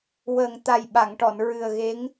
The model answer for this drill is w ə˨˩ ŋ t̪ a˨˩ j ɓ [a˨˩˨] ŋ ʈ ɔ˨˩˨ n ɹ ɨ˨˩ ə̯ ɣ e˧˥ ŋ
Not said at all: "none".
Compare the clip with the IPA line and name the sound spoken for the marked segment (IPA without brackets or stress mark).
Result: a˨˩˨